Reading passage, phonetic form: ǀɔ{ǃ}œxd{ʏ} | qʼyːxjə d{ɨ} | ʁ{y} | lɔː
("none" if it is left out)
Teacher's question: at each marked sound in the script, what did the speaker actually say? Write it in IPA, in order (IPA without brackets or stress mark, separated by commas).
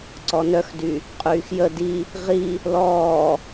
n, y, i, i